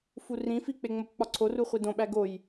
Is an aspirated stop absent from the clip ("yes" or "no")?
no